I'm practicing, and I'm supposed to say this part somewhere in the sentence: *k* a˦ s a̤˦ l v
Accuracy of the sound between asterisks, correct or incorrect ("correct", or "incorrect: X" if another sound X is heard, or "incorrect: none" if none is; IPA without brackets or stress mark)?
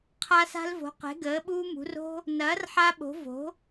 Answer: incorrect: qʰ